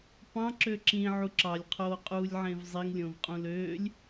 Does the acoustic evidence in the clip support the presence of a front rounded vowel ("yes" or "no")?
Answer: yes